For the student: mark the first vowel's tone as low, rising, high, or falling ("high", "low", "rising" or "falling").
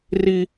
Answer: high